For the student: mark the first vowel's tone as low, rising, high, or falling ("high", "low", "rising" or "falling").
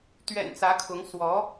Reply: low